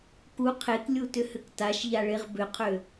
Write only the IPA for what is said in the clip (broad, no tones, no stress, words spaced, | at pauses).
ku qʰeklʲutʏhʏk taʃʎaɭeʁ bʏqʰø